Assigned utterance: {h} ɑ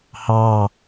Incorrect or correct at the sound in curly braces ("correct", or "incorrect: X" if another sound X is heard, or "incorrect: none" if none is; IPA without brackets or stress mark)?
correct